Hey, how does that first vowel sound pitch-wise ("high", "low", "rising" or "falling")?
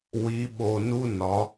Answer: rising